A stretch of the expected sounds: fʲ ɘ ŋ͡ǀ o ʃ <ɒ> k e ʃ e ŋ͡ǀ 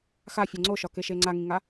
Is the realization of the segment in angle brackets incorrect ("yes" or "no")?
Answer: no